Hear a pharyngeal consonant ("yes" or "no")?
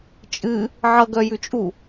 yes